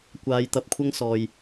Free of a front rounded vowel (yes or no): yes